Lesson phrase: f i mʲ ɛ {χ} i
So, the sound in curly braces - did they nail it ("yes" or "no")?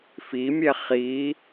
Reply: yes